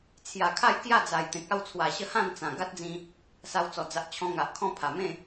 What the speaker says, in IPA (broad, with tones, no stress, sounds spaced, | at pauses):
t͡sʰ j a˨˩ kʰ a˥˧ j k j a˥˧ d͡z a˨˩ j t̪ ẽ˨ k̚ a˥˧ w t͡sʰ w a˨˩ ɕ ə˥˧ h ã˥˧ n t͡s ã˨˩ ɡ a˦ t̚ d͡z ĩ˧ | s a˧ w t͡s ɔ˨˩ d͡z a˨ ʔ t͡ɕʰ ɔ̃˧ ŋ a˨ ʔ kʰ ɔ̃˦ pʰ a˨˩ m ẽ˥˧